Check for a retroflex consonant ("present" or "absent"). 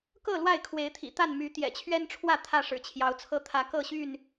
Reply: present